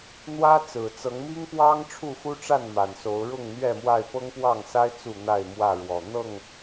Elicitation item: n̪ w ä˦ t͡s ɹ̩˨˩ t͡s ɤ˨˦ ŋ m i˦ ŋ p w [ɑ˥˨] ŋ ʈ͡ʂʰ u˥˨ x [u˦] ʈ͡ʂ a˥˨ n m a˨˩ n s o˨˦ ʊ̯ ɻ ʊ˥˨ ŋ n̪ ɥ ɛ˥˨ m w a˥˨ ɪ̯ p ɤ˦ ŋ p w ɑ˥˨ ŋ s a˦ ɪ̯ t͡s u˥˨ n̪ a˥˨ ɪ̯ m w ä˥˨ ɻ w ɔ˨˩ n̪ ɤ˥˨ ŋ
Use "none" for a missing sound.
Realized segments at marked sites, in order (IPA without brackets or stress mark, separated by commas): ɑ˦, u˦